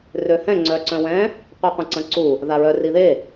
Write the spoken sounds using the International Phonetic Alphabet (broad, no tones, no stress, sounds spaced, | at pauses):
r ø h ɛ̃ ŋ͡ǀ œ ǀ œ̃ w ɛ̃ | qʷ i qʷ ə̃ ǀ ə̃ ǀ u | ð a ɹ œ r i ð e